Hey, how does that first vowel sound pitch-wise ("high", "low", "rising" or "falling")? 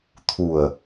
low